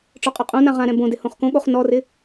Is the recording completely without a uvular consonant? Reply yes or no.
no